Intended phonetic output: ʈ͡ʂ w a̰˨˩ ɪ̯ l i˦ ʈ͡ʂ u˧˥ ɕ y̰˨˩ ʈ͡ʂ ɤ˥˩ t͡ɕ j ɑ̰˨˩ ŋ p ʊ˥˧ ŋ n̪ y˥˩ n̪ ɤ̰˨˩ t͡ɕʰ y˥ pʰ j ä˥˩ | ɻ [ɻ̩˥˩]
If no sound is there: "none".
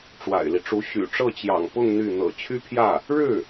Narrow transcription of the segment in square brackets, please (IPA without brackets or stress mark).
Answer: ɻ̩˥˩